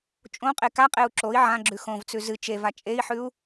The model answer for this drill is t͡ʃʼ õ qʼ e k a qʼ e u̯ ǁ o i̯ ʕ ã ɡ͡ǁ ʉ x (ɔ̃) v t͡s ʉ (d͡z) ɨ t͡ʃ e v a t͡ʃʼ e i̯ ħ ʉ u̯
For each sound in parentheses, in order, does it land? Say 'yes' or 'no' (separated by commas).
no, no